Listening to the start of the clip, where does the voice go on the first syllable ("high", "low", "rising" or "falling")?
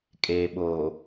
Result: low